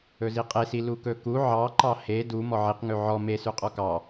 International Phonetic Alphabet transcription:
ɵziqʼesi lukɵku ʕɑǃɑ he du mɔʕiqŋʉ ʕɔ me sʉqʼɔkɑ

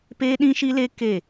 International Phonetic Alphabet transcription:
peː˦ɗĩ˦ʃi˦le˦ ke˦˨

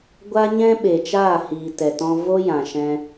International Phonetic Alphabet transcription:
ɡʷa˦ɲɛ̃˦ɓe˨t͡ʃaː˦˨ hiː˨tɛ˨tɔ̃˧ vo˦jã˨ ʃɛ̃˧

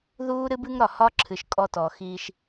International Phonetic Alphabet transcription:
ðuː˦ɾɨ˦bɨ˦ŋɾɒ˨ hɒ˦ǁʰɨ˨ʃ kʼɔ˦tɔ˨ xiː˦ʃ

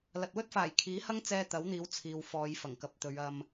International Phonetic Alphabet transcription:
lɐ˨t̚wɵ˥t̚faː˨˩j kʰiː˨˥hɐ˥ŋ t͡sɛː˧t̪ɐ˨˥wn̪iː˨˧w t͡sʰiː˨wfɔː˨˧jfɐ˨˩ŋkɐ˨p̚ t̪ɵ˨˧ɥɐ˧m

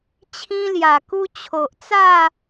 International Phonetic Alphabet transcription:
t͡ɕʰĩ˧lja˨˩ku˧ t͡ɕʰo˨ʔt͡sa˥˧

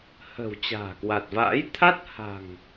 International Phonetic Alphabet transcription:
hə̤˨˩w t͡ɕa̤ː˨˩kwa˨˩t̚va̰ː˧˥j t̪ʰa˦˥t̚ha̤˨˩ŋ

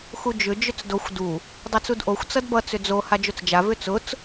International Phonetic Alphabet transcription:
xud͡ʒʏ d͡ʒʏt͡sdoxʷ du | dˤʌt͡sudʔoxʷ t͡sʌdbʌ t͡sʏd͡zo had͡ʒot͡sd͡ʒa vʏt͡sʊt͡s

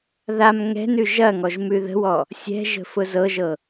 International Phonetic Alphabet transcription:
ðam ŋɛ̤nʉ ʒɐŋɔʒ mʉðə̤wɔ | sʲɛ̤ʒə̤ fʊzɤʒɤ

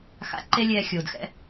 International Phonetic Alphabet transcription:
xa̰˧ǃe˦lʲɛː˧ xʲoː˨d xɛ̰˦

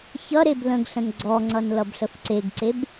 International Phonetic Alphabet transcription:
çʌɾeb lə̃ɡɬə̃n ɡ͡ǀɔŋ͡ǀʌn lʌbɬəfǀeɡǀeb

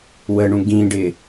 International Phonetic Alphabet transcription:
wəɳũ ɡĩɖɪ

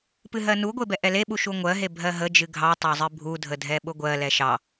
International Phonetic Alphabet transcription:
pɨɦɜnuɡʷe bɛʔɛleɓu ʃuŋʷɜɦe bʱɜɦəd͡ʒɨ ɡʱɑ tˤɑzˤɨbʱudʱə dʱɛɓʊɡʷɜlɛ ʃɑ

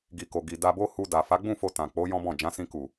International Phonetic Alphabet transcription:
ɡi˨ko˨ ɡi˨da˧bo˦ hu˧ da˨ fa˨˦ɡ͡bũ˦˨fo˧ tã˨k͡po˨˦ jɔ̃˦bɔ̃˦˨ d͡ʒã˨˦sĩ˧ku˨

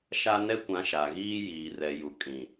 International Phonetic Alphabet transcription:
ʃa˦nɛ˦kʷã˨˦ ʃa˨ɣiː˦ jiː˨rɛ˨ju˨ kʼĩ˨

